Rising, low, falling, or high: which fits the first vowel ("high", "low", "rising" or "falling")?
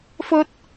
high